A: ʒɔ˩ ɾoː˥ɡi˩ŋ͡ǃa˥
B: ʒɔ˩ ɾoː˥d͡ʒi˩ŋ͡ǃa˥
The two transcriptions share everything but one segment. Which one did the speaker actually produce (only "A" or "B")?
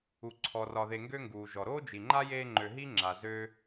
B